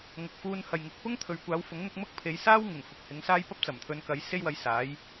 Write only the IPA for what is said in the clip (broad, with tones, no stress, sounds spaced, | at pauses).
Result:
ŋ ʊ˨ k̚ f uː˧ n h ɐ˨ j ŋ ɪ˨˥ k̚ p ʊ˥ ŋ t̪ʰ ɵ˨ ɥ kʷ aː˨˧ w f ʊ˨˥ ŋ n̪ ʊ˧ k̚ m ʊ˥ k̚ pʰ e˨˧ j s aː˥ w ŋ ɪ˨˩ ŋ f ʊ˨ k̚ h ɪ˨˧ ŋ s aː˥ j p ɐ˥ p̚ t͡s ɐ˨˩ m t̪ʰ ɵ˨˧ n k ɐ˨˥ j s e˥ j w ɐ˧ j s aː˨˥ j